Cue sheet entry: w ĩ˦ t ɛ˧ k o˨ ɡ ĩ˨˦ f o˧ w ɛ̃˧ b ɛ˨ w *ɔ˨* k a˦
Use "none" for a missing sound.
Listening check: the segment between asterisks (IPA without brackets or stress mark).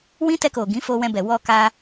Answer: ɔ˧